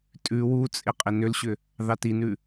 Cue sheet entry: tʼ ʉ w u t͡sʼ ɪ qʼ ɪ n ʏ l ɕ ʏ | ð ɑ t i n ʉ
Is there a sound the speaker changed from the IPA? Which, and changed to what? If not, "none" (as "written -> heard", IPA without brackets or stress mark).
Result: none